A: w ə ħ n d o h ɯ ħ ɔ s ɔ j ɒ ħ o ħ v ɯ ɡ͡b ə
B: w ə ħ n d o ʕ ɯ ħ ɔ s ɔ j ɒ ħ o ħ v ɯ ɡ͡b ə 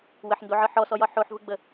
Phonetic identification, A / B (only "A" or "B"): B